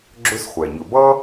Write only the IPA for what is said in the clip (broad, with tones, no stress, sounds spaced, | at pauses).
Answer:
ɡ͡ǁ ɵ˥ s χʷ ɛ˩ ɲ ɵ˨ b ʌ˥